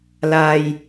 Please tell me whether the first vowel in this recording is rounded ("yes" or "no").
no